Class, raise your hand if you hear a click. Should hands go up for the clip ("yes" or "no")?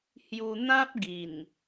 no